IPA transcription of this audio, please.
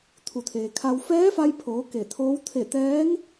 t̪ʰ u˩ t̪ʰ eː˩ kʰ a˧ w f ɛː˧˥ f a˧ j pʰ oː˩˧ k e˧˩ t̪ʰ oː˧˥ w t̪ʰ e˧˩ t̪ ɛː˧˥ ŋ

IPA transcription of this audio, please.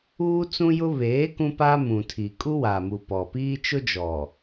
uː˦ t͡s ũ˦ j ʊ˦ β eː˨˦ k ũ˦ p a˦ m ũ˨ tʰ i˨ kʼ u˦ w a˨ m u˨ p ɔ˨ p iː˦ t͡ʃ ʊ˦ d͡ʒ ɔ˨

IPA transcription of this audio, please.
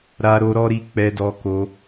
ɾ a˦ ɾ o˦ ɾ ɔ˦ ɾ i˦ k͡p ɛ˦ d ɔ˦ k o˦

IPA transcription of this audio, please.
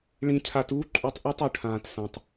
ɭ ĩ˧ cʰ a˧ t uː˦ ǃʼ u˧ tˤ ʔ ɛ˦ tˤ u˨ ʈʰ ãː˨ t s ã˨ tˤ

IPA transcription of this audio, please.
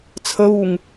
t͡sʰ ə β u ŋ

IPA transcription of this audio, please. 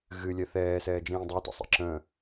ɣ ɨ lʲ ɜ θ ɛː s ɛː d͡ʒ ĩː dˤ ɜ t ə̰ sˤ ḭ ǁ ə̃

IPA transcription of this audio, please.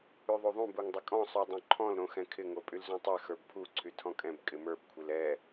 y ðˤ u ðˤ ũ b u ŋ dˤ ɪ kʼ ɔ̃ sˤ y dˤ õ ǃʰ ɔ̃ l ɾ õ x ɛ̃ kʰ ɪ ŋ o pʼ y l z õ tˤ ɛ x ə˞ b pʰ u ǀʰ y tʰ ɔ̃ kʼ ɛ̃ b kʼ ɪ m ə˞ b kʷʰ ɪ l ɛ

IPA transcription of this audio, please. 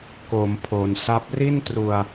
k o˩˦ m pʰ o˩˦ n s a˦˥ p̚ r i˥˩ n t r u˧ a̯

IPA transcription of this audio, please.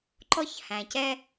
ǃ ɔ˥ ç h æ̃˩ c ɛ˥

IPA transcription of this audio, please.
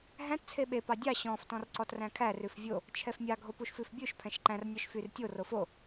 ɦ æ̃ t t͡sʰ e ɓ e p ɑ dʲ ɑ ɕ ɔ̃ f t ɔ̃ r ǀ ɔ t r æ̃ kʰ æ r ʉ f vʲ o | t͡ʃʰ ɛ f mʲ ɑ ɡʱ o p u ʃ f ʉ f bʲ ʉ ʃ pʰ ɛ̃ ʃ ǃ æ̃ r nʲ ɔ ʃ f y r tʲ o r o f o

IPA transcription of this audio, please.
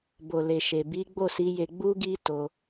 b o˨ l e˨ ʃ e˨ b i˨˦ ɡ͡b o˦˨ s i˨˦ j e˧ ɡ͡b u˦ ɡ i˦ t o˧

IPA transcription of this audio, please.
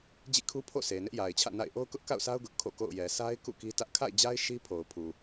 d͡ʑ ḭ˦˨ kʰ u˦ pʰ o̰˦˨ sʰ e˨ n ɪ˦ ʔ j a˨ ɪ̯ t͡ɕʰ ä̰˦˨ n a̰˦˨ ɪ̯ ʔ o˦ ʊ̯ k ʊ˦ ʔ k a̰˦˨ ʊ̯ sʰ a˦ ʊ̯ ɡ ʊ˦ ʔ kʰ o̰˦˨ k o̰˦˨ ʊ̯ j ɛ˨ sʰ a˦ ɪ̯ k ṵ˦˨ k i˦ t ä˦ ʔ kʰ a̰˦˨ ɪ̯ d͡ʑ a˦ ɪ̯ ʃ i˦ pʰ o˨ ʊ̯ pʰ u˨

